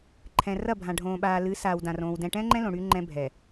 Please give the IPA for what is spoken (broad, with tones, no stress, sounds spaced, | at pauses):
ǃʰ ɛ̃˨ r ɐ˦˨ bʱ ã˨ ɖʱ õː˨ ɓ aː˨ l ɨ˨˦ s aː˨ w d ã˨ r õː˨ w d ɛ̃˨ ʈ ɛ̃˦ ŋ͡ǃ ɛ̃˦ l õ˨ ɽ yː˦ ŋ͡ǃ ɛ̃˦ bʱ ɛ˨